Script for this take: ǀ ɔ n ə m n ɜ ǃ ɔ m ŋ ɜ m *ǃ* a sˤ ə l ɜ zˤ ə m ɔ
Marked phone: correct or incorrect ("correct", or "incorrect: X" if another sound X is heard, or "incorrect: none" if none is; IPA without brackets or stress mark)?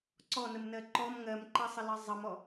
correct